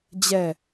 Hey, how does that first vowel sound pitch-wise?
falling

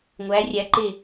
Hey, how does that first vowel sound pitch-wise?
rising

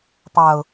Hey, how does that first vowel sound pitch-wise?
low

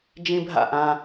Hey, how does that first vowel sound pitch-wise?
high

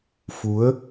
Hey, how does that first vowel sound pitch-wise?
rising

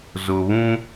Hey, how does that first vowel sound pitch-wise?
low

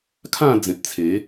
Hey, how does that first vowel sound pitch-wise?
falling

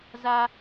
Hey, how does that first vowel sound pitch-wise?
low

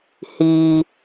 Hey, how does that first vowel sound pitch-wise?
low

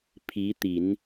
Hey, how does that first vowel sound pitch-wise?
rising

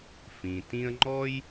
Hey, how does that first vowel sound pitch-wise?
low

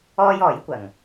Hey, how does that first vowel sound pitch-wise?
high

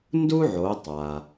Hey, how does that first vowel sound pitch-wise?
high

